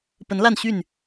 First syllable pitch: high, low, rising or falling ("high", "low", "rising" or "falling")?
rising